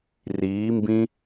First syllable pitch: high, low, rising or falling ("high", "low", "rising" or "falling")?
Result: rising